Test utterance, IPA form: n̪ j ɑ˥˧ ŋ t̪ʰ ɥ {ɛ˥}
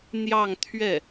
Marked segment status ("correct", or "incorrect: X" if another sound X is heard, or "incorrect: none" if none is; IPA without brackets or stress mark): incorrect: ɛ˥˩